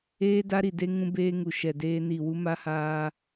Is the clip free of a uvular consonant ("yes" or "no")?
yes